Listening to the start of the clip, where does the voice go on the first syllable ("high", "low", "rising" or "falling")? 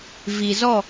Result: low